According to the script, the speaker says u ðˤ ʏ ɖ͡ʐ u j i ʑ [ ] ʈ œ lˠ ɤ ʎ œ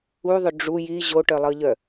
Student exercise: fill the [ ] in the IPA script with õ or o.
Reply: o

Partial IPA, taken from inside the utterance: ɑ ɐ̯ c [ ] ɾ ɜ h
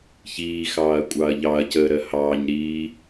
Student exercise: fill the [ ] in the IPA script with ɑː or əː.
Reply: əː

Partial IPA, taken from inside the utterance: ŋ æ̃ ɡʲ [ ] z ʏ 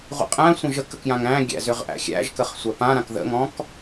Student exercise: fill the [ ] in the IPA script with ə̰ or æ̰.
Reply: æ̰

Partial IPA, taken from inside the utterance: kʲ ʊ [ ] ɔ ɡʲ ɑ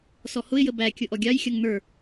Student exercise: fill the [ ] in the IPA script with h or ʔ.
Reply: ʔ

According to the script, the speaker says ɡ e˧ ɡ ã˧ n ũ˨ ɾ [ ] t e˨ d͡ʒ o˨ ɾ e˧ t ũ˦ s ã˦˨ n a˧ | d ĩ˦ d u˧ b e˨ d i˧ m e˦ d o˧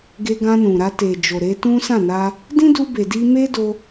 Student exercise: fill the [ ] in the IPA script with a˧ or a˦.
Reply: a˧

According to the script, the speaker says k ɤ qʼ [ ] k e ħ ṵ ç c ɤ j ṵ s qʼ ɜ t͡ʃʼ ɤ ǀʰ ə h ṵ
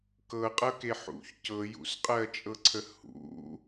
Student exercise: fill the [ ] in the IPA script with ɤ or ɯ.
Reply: ɤ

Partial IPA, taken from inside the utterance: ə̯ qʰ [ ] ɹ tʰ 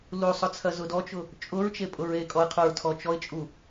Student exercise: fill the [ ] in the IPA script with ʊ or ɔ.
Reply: ʊ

